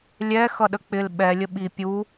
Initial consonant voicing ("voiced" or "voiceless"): voiced